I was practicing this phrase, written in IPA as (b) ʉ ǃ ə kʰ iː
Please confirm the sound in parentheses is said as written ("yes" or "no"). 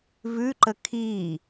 no